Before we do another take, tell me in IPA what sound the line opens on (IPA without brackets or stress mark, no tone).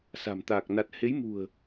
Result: s